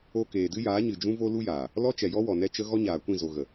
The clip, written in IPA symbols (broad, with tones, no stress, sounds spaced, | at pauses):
o˧ k eː˨ d ɨ˦ j aː˨˦ ɲ ɨ˨ d͡ʒ ũ˦ v o˦ l u˦ j aː˨ | l ɔ˦ t͡ʃ ɛ˨ j ɔ˦ w ɔ˨ n ɛ˦ t͡ʃ ə˦ ɣ ɔ˦ ɲ aː˨ kʷ ĩ˦˨ z o˨ ɣ ə˨